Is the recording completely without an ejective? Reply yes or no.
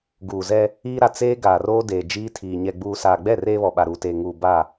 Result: yes